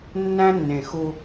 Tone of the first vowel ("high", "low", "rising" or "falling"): high